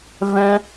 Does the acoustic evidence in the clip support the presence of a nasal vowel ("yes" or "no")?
yes